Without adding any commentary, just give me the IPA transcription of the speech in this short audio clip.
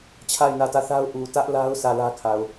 t͡ɕʰ a˦˨ ɪ̯ n ä˦˨ t ä˦˨ θ a˦ ʊ̯ ʔ u˨ t ä˦ ʔ l a˦ ʊ̯ sʰ ä˦˨ l ä˦ kʰ a˨ ʊ̯

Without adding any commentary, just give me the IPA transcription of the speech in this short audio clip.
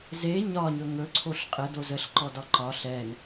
z e ɲ ɒ ɲ ɵ ŋ ɵ ǀʰ o ɬ qʼ ə d o z ə ɬ ǃ ɔ d ɒ ǃ ɒ ɬ ɛ n

